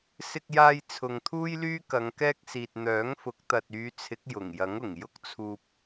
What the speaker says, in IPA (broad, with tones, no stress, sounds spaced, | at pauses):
s ɪ˧ k̚ j aː˧ j t͡sʰ ʊ˨ ŋ t̪ʰ uː˥ j l yː˥ k ɐ˨˧ ŋ k ɛː˥ k̚ s iː˨ t̚ n̪ œː˨˥ ŋ f ʊ˨˥ k̚ t̪ ɐ˨ t̚ yː˨˧ t͡sʰ ɪ˨˥ k̚ j ʊ˨˩ ŋ j ɐ˨˥ ŋ ʊ˨˩ ŋ j ʊ˥ k̚ t͡sʰ uː˧ p̚